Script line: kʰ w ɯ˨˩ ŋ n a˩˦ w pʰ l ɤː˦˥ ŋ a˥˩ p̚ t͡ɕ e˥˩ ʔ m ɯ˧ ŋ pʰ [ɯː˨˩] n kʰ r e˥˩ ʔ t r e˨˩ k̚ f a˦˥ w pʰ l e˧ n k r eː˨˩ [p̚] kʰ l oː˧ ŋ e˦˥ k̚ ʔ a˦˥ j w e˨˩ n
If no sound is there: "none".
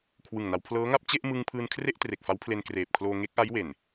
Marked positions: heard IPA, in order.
ɯː˧, p̚

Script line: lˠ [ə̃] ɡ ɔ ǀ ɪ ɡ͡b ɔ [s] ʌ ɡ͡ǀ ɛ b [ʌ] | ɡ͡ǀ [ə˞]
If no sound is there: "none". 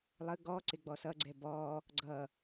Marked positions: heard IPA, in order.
ə, s, ɔ, ʌ

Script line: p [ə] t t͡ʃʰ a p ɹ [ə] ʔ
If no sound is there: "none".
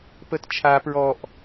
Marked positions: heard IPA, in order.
ə, ɔ

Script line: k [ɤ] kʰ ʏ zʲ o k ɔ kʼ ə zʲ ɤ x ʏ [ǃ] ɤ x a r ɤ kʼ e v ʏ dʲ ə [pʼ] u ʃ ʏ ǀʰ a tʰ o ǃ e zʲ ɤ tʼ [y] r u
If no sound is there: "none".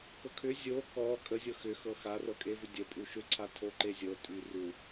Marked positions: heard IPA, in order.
ɤ, x, pʼ, y

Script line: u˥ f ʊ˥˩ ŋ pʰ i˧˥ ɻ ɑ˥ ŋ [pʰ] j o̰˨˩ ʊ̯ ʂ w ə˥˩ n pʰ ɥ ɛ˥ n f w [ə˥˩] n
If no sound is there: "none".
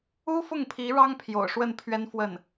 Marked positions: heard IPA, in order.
pʰ, ə˥˩

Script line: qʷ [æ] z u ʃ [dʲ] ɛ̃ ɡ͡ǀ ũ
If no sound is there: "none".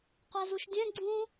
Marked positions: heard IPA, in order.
æ, dʲ

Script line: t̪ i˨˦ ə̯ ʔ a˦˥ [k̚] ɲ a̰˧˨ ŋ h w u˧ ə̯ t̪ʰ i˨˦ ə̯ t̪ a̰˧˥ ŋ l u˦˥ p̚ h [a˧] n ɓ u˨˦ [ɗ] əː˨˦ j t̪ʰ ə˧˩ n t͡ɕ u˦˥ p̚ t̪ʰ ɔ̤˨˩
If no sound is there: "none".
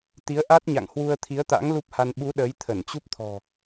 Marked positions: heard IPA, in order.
t̚, a˧, ɗ

